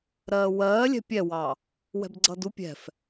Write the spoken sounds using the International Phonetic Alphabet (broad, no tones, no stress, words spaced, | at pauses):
ɾɜːwɜː lʲɛ̤pʲɛwɑ | wɛ̤bɡ͡ǀʌdu pʲɛ̤f